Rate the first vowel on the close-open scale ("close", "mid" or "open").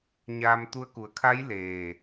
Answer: open